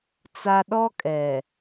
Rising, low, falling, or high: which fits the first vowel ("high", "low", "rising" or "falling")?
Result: high